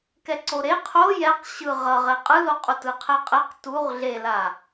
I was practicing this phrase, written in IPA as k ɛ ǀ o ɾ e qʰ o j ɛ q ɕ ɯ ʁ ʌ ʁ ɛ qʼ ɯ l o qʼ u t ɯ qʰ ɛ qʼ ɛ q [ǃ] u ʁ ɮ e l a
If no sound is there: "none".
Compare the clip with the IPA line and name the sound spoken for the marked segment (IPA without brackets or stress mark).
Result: t